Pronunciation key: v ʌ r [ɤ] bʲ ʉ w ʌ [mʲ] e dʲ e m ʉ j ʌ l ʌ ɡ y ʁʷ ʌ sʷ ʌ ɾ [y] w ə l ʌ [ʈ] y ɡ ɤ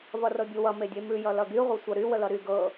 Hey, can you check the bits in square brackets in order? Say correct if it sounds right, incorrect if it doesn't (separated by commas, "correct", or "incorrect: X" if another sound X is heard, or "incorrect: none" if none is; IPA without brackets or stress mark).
correct, incorrect: m, correct, incorrect: ɾ